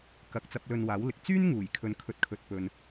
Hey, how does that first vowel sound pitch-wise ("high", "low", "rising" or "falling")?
low